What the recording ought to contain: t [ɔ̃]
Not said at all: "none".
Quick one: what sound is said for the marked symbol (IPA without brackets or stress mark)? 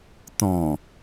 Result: ɔ̃